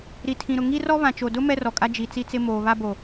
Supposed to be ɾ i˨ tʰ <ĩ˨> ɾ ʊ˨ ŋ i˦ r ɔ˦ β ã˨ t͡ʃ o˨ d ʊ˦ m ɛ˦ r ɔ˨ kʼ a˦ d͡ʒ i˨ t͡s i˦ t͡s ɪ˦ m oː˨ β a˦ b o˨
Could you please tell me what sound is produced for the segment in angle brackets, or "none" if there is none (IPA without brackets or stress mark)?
ĩ˨